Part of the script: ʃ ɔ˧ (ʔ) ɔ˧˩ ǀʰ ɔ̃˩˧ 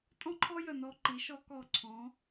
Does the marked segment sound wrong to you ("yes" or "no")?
yes